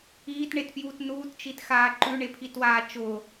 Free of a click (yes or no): no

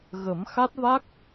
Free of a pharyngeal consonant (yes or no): yes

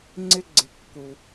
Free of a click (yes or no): no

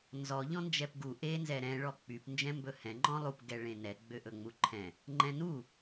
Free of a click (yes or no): no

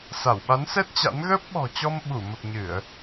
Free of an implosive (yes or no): no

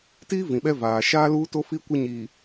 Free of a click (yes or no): yes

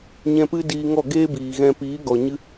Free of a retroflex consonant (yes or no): yes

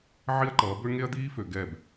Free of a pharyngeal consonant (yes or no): no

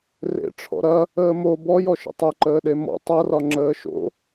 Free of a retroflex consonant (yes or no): no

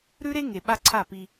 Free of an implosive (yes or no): no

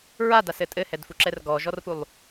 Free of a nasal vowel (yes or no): yes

